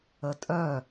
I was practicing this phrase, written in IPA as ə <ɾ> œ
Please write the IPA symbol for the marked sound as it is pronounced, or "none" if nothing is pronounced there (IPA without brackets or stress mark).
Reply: tʼ